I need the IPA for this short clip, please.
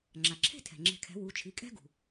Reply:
ŋ͡ǁ a˩ ǁʰ e̤˥˧ tʰ ɛ̤˩ ŋ͡ǁ e̤˧˩ kʰ ɛ̤˩˥ w u˩˧˩ t͡ʃʰ i˩˧˩ kʼ ɛ̤˥ ɡ ṳ˩

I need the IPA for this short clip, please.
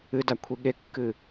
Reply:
ɨ d a kʷʰ i ɠ e kː ɨ

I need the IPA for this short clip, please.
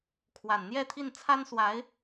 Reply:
kʰ w a˨˩ n n̪ j ɛ˥˧ t̪ʰ i˥˩ n t͡sʰ a˥ n s w a˧˥ ɪ̯

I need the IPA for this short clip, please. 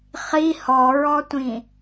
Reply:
χ i h ɔ ɹ ɔ tʷ ĩ

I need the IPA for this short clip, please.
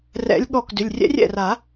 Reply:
r ɛ̰˨˦ lʲ ɠ ɔ˧˩ k d ʏ˩˧˩ lʲ rʲ ɛ̰˦˥ rʲ ɛ̰˥˩ r a˨˩˦

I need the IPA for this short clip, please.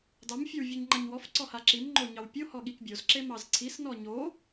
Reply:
d ɑ m fʲ e w vʲ e ɲ ŋ͡ǃ a ɲ w ɔ f ǀ ɔ h a ǁ i m ŋ͡ǃ o ɲ ɑ w pʲ o h ɔ ɠ i k bʲ o z ǁ e m ɑ z ǀʰ i s n ɔ ɲ o

